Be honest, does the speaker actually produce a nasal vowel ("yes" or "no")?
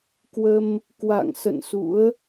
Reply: no